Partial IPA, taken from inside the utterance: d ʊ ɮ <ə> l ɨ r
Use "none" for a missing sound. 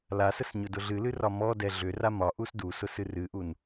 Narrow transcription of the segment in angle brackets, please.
ɨ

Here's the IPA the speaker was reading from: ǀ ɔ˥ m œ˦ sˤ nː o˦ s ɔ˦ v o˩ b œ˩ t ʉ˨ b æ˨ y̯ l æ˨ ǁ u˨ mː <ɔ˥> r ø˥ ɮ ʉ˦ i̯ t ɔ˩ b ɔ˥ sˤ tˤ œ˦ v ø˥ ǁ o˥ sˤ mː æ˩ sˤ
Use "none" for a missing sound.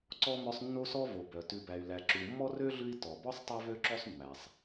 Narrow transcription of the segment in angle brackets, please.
ɔ˥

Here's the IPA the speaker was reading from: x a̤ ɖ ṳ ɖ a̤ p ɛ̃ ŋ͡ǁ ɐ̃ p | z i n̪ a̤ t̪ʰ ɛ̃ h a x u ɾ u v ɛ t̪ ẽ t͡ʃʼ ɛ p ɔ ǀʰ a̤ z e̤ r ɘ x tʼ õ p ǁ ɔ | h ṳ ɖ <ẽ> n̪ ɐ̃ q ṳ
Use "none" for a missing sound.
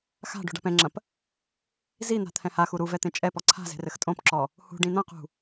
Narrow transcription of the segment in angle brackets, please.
ĩ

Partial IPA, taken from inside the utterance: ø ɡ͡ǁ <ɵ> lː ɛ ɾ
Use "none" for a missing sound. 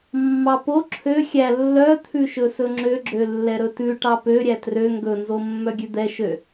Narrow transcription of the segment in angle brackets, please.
ø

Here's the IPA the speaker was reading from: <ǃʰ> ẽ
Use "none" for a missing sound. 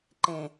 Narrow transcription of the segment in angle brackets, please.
ǃ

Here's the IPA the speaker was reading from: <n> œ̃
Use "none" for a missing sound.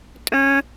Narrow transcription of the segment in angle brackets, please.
tʼ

